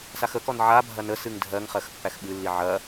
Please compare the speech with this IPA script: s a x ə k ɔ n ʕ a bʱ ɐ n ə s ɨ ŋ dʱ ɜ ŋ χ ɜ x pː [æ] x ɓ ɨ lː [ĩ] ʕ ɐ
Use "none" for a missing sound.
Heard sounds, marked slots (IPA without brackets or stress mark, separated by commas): æ, i